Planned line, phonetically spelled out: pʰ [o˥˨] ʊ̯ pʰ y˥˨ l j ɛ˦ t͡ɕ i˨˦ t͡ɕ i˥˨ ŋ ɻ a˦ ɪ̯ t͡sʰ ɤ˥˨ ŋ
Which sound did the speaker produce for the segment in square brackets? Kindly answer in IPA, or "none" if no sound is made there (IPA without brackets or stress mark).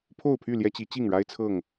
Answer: o˥˨